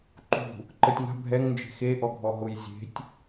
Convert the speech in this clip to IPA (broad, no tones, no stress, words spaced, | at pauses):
ǃṳ | ǃətʲŋa̤ bʱɛŋnd͡ʒe̤ xe ʔɔɡʱɔɦʊj zʲe̤tʲ